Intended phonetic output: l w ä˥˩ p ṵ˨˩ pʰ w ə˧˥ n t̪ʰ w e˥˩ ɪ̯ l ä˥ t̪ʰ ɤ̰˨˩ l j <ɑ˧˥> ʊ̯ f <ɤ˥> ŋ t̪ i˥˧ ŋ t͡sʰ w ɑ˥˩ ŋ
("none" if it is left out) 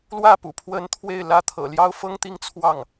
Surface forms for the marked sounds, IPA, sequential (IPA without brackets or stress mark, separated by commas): ɑ˥, ɤ˥